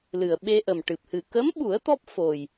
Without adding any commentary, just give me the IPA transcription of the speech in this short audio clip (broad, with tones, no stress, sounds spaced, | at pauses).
l ɨ˨˩ ə̯ ɓ e˧ ʔ ə˨˩ m ʈ ɨ˨˩ p̚ h ɨ˨˩ k ə˧˥ m ɓ u˨˩˦ ə̯ t̪ ɔ˦˥ p̚ f o˨˩ j